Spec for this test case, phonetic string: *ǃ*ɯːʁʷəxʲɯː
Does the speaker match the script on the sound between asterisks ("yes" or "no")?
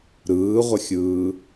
no